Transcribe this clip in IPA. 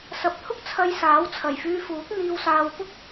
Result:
s ɐ˨ p̚ t̪ʰ ʊ˥ k̚ t͡sʰ ɐ˧ j s aː˨˥ w t͡sʰ ɐ˨˩ j f yː˧ f uː˨˥ k̚ n̪ iː˧ w s aː˧ w p ʊ˥ k̚

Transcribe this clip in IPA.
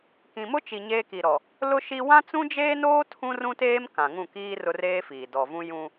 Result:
k ĩ˨ m ʊ˦ t͡ʃ i˨ ɲ eː˦ k i˨ ɾ ɔ˨ | l ʊ˦ ʃ i˦ w ã˦ t͡s ũ˦ d͡ʒ eː˦ n oː˦ tʰ ũ˦ r ũ˦ t eː˦ m k ã˨ ŋ ũ˦˨ k iː˦ r ʊ˦ r eː˦ f iː˨ d ɔ˨ v ũ˦ j ũ˦

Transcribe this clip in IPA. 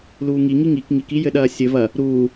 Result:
l uː ŋ i ŋ i ŋ i k ŋ i k i j ɘ ɗ ɐː sʲ ɘ v ɐ | ɾ uː

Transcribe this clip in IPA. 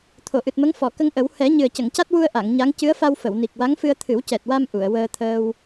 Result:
t̪ʰ o˨˩˨ ʔ ɨ˨˩ t̚ m ə˧˥ ŋ f ɔ˨˩˨ k ə˧ ŋ ʔ ə˨˩˦ w h ɛ˨˩˦ ɲ ɨ˨˩ ə̯ c ə˨˩˨ ŋ c a˦˥ t̚ w u˧ ə̯ ʔ a˨˩˨ ŋ ɲ a˧˥ ŋ c ɨ˧˥ ə̯ f a˧ w f ə˨˩˨ w n i˨˩ k̚ w a˧˥ ŋ f ɨ˧ ə̯ t̪ʰ ɨ˨˩˦ w c ɛ˨˩ t̚ w a˧ m ʔ u˨˩˨ ə̯ w əː˧ t̪ʰ əː˧ w

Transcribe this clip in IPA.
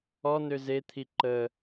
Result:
ɔ n ø z e t̪ʰ i ǃ ə

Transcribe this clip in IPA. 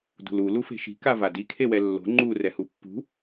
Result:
d ṳ l u l u f e̤ ʃ i̤ k a v a d i kʰ e w ɛ lː o̤ ŋ͡ǃ u r ɛ h u pː ṳ

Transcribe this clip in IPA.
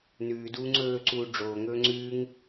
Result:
n ʉː d uː ŋ͡ǀ ɵː ǀ uː ɖ͡ʐ oː ŋ ɵː ŋ͡ǀ ʉː ŋ

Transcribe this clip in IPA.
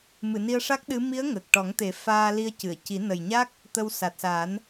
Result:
m ɨ˨˩˨ n i˧ ə̯ ʂ a˦˥ k̚ ɗ ɨ˧˥ m i˧˥ ə̯ ŋ ə˨˩ k̚ ʈ ɔ˨˩˦ ŋ t̪ e˨˩˦ f aː˧ l i˧ ə̯ c ɨ˨˩˨ ə̯ c i˨˩˦ n ə˨˩ j ɲ a˦˥ k̚ | t̪ ə˧ w s a˨˩ t̚ s a˨˩˦ n

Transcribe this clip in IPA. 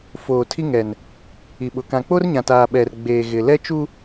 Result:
f oː˨ tʰ i˦ ŋ ɛ˨ n | i˨ ɓ ʊ˨ k ã˨ k͡p o˦ r ɲ ã˨ t aː˨ ɓ ɛ˨ r ɡ͡b eː˨ ɣ ɪ˨ l ɛ˦ t͡ʃ u˦

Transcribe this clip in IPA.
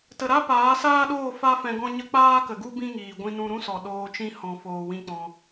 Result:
t ə˧ ɾ a˦ p aː˨˦ s aː˦ ɗ oː˦˨ f a˦ f ɛ̃˧ ɡ ɔ̃˦ ɲ ə˦ k͡p aː˦ k ə˨ ɡ u˦ b ĩ˦ ŋ iː˨ ɡʷ ĩ˧ n ũ˧ ɾ ũ˦ s ɔ˨ ɗ oː˧ t͡ʃ ĩ˦ h ɔ̃˧ f oː˧ w ĩ˦ k͡p ɔ̃˧

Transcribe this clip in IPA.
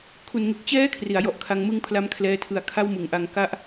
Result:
kʰ u˨˩ n ŋ e˨˩ k̚ t͡ɕ ɛː˦˥ kʰ r i˩˦ a̯ j ɔ˨˩ ʔ kʰ a˧ ŋ m ɯ˦˥ ŋ pʰ l a˦˥ m kʰ l ɛː˧ tʰ ɯ˩˦ a̯ kʰ a˥˩ w m ɯ˩˦ ŋ ʔ a˧ ŋ k a˥˩ ʔ

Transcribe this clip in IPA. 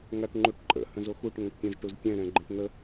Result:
ŋ a ʈ ŋ͡ǃ u ʈ ǃʼ ə̰ h ə̃ z o x u ʈ ŋ œ̃ ʈ tʲ ɛ̃ z ʈ u z tʲ ɛ̃ ɾ ɛ̃ ɡ͡ǃ ə̃ ʈ n̪ ə

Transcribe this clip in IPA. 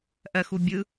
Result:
ʔ ɜ x u bʲ ɯ

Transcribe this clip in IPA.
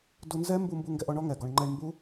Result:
d u˧ n z ɛ˦ m b u˧ m b u˧ ŋ ɡ ɛ˧ ʔ ɔ˧ ɳ ɔ˦ ŋ ɛ˨ ɡ ɔ˧ ɳ ŋ͡ǃ ɛ˧ ɳ m b u˦

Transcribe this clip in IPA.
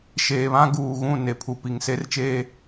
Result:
ʃ eː˨ β ã˦ ɡ uː˨ ɣ ũ˦˨ n e˨ pʰ u˨ p i˨ ŋ s e˦ r t͡ʃ eː˦

